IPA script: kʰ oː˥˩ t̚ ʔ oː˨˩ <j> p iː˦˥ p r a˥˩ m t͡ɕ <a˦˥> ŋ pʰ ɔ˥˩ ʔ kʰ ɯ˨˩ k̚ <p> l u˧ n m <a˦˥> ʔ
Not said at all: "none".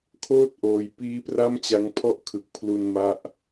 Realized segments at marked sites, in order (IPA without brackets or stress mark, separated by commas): j, a˦˥, pʰ, a˦˥